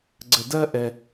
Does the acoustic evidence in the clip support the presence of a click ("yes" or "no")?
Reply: yes